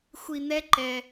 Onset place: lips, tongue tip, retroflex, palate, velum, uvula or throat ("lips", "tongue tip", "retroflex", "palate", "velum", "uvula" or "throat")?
velum